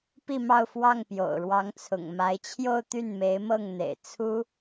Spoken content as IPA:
p i˥˧ m ɑ˥˧ ʊ̯ f w ɑ˥˩ ŋ p j o̰˨˩ ʊ̯ ɻ w ɑ˧˥ ŋ t͡sʰ ʊ̰˨˩ ŋ m a˧˥ ɪ̯ t͡ɕʰ j o˥˧ ʊ̯ t̪ y˥˩ n m e˧˥ ɪ̯ m ɤ˥˩ ŋ n̪ ḛ˨˩ ɪ̯ t͡sʰ u˥

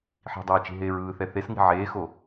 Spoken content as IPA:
ħ i̤ dˤ eː t͡ʃ i̤ ɦ eː ɹ ɯː θ ɛ θ e s ŋ i̤ ʕ eː x o

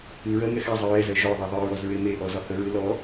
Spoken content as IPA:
ɨ ɹ ɜ ŋ ɛ x a zˤ ɨ ɹ ɛ z ɜ ʒ ɔ ðˤ ɛ ðˤ ɨ ɹ ɔ z ɹ e m e ʔ ɔ z ɒ h ə ɹ ɨ l ɔ

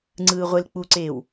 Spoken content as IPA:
ŋ͡ǀ ɯː ʁʷ e l k͡p u ǀ eː w

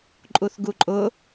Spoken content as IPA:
ǃʼ u θ ɡ u ǃʼ ʊ

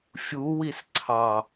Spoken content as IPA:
fʲ u w i s ǀʰ ɑ

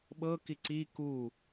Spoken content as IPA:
ɓ ɤ k i ǀ i k u

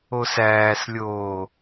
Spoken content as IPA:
o s æː s lʲ oː

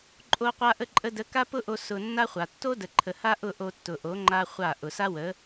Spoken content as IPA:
ǃʼ o˧ qʷ a˧ ʔ ə˧ ǃʼ ə˧ d ə˨˦ k a˦ p ʊ˦ ʔ o˧ s ʊ˧ nː a˦ χʷ a˨ tː o˦ d ə˨ ǃʰ ə˨ h a˦ ʔ ʊ˦˨ ʔ o˧ tː ʊ˨ ʔ o˨˦ ŋ͡ǃ a˦ χʷ a˦˨ ʔ ʊ˨ s a˦ w ə˨˦

